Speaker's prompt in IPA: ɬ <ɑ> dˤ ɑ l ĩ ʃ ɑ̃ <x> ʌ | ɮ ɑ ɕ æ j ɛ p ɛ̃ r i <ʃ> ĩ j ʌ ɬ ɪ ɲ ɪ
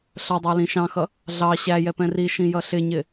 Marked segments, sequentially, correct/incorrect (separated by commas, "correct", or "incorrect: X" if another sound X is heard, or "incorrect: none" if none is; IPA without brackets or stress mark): incorrect: ʌ, correct, correct